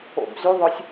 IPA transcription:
o̰ b z y ðˤ œ sʲ

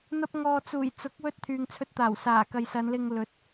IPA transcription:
n̪ ɐ˥ p̚ ŋ ɔː˧ t͡s uː˨˩ j t͡s ʊ˨˥ k̚ w ɵ˧ t̚ t̪ʰ yː˨ ŋ t͡sʰ ɵ˧ t̚ t̪ aː˨˩ w s aː˨˩ k ɐ˨ j s ɐ˨˧ n l ɪ˧ ŋ l ɵ˨˥ t̚

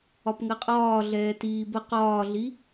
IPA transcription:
ɒ p ŋ ɜ qʼ ɒː ɮ ɛː t iː b ə q ɒː ɮ i

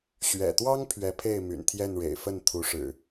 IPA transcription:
ɕ ɥ ɛ̰˨˩ t̪ w ɑ˦ ŋ pʰ ɥ ɛ˨˦ pʰ e˥˨ ɪ̯ m y̰˨˩ n t̪ʰ j ɛ˥˨ n ɻ ḛ˨˩ ɪ̯ f ə˥˨ n t̪ʰ u˨˦ ʂ ɻ̩˨˩

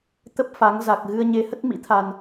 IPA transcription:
t̪ ə˦˥ p̚ f a˨˦ ŋ z a˨˩ k̚ ɣ ɨ˧ ə̯ ɲ e˧ h ə˦˥ t̚ m ḭ˧˥ t̪ʰ a˨˩ n

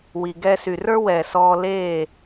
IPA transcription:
w i˩ ɡ ɛ˧ s y˩ r ə˞˥ w ɛ˩ s ɔː˧ l eː˥˩

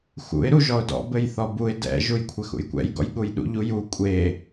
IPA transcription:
x ṵ ɪ̯ ɾ u ʒ ɔ ʊ̯ d ɔ̰ b ɘ j θ ɔ b u ɪ̯ d ɛ̰ ʒ u j kʷʰ ɘ x ṵ j kʷ ɛ̰ j ɡ ɔ̰ j ɠ u j ɗ ṵ ʎ u j u kʷʼ e

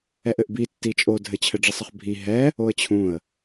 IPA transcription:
ɛ ʔ ɘ ʔ b i tː i t͡ʃʼ o dʱ ɘ t͡ɕʰ ɘ ɖ͡ʐ i sˤ ə χ bʱ i ɦ ɛ | o ə̯ t͡ɕʰ ũ ə̯

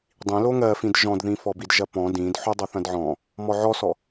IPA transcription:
dˤ ĩ l o ŋ ɜ f ĩ d ʒ ɔ̃ d ð ĩ f ɔ b i d ʒ ɐ p ɔ̃ d ĩ d ħ o dˤ ɐ θ ɐ̃ d ʕ ɔ̃ | m ɔ ʕ ɔ s ɔ

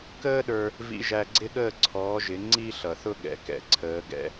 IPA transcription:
k əː˦ ɗ ə˞˧ | v ḭ˧ ʒ æ˧ ɡ͡ǀ ɪ˦ ɠ əː˦˨ ǀʰ ɔː˨˦ ʒ ɪ˨˦ ŋ͡ǀ i˦ ɬ ʌ˨ θ ʊ˦ ɠ ɛ̰˨ k ɛ̰˨ ǀʰ əː˨˦ ɡ ɛ̰˧

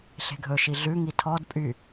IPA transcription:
ɬ e̤ ɡʱ ɵ ʃ i ɮ ʉ ŋ i tʰ ɔ d pʼ y

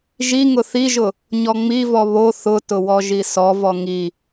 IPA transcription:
ʒ i ŋ ʊ θ i ʒ ʊ | ɲ ɔ ŋ͡m i v ɔ β o θ ʊ t ʊ w ɔ ʒ i s ɔ v ɔ ŋ i

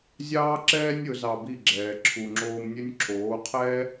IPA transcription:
zʲ ɑː˥ ǁ ɛː˥ nʲ ɵ˩˥ z ɑ˧ b i˥˩ ɡ͡ǁ ɛː˩ ǁʰ u˩ ŋ͡ǁ oː˧ m nʲ ɵ˥ nʲ ǁʰ oː˩˥ qʰ ɛ˥

